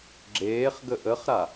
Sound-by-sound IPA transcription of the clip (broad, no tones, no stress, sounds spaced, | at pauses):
ɡ͡ǁ eː χ ɡ ə ʔ ə χ ɾ a